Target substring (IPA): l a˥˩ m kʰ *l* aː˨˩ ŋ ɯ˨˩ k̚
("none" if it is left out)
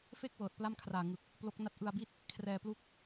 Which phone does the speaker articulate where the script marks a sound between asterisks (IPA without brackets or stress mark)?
r